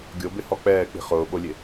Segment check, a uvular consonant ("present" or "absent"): present